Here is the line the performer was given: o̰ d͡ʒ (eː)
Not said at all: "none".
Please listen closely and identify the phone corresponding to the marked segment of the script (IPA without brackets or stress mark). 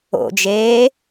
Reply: eː